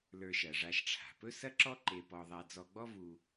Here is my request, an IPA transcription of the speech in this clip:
lə˞˧ʃɐ˩ʐa˧ʃʈ͡ʂʰa̤˩ pɵ˥sɐ˥ǁɔ˥ ǃe˧pɔ˧ðˤa˧ d͡zɔ˧ɡ͡bɔ˥vu˧

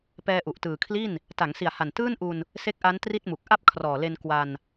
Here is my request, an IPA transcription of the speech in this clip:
pɛː˧ʔu˨˩ʔtɯː˨˩kʰli˥˩n | ta˩˦ŋsi˨˩a̯ha˨˩n tɯː˥˩nʔu˧n | se˦˥k̚ʔa˦˥n tri˥˩t̚mu˨˩k̚ ʔa˥˩p̚kʰrɔː˨˩le˧n kwa˧n

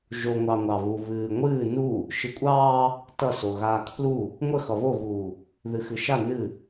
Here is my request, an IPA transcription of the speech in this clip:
ʒoŋʷɑ ŋʷɑβu βɨːŋʷɨː nu | ʃɨkʷʼɑː | tʌso ɣaːkʰlu | ŋʷə xʌβoɣuː | ðɨxɨʃa nɨ

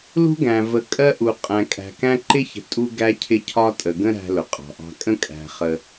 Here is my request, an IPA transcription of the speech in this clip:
lṳ˦ɡæ̃˨ və˨kʼɜ˦ʔu˨ qʼæ̃˨kʼæ̤˨kæ̃˦ ǃɪ˦çə̤˨ tʼu˦ ɡæ˦cʰɪ˦cʰɒ˦tʼə˨ ɡə̃˦ ɾæ̤˦lʊ˨qʼɑ̤˨ʔɑ̤˦ kʼə̃˦kʼæ̤˨ χə˦

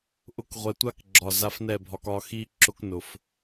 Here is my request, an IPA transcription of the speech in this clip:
ʔʊ˧kʁʷɛ˨tʷa˦kɡ͡ǁɒ˨ za˧fnɛ˦˨bʱɒ˧k ɒ˨xi˧ ǁʊ˧knʊ˨f

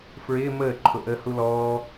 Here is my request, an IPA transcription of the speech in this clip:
fɹɪː məː ǃʰʊʔəːhulɔː

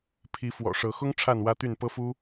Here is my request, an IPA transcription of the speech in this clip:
pʰi˨˦ fwɔ̰˨˩ʂɤ˨˦xʊ˦ŋ ʈ͡ʂʰa˥˨nwä˦t̪y˥˨n pɤ˦fu˦

